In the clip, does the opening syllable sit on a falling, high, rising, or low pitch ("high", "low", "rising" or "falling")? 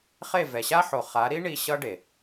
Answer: falling